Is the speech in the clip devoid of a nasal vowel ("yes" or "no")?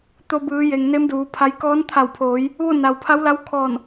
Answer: yes